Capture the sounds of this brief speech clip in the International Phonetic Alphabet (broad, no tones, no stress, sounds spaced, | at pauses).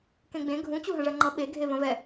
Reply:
k ẽ ɡ͡b ẽ ɡʱ ũ t͡ɕ u ɦ ə̃ ʐ ɜ ŋ͡ǃ ʌ ɓ e ɡʱ e v ə̃ v ɛ